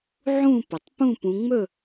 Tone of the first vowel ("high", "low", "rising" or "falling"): falling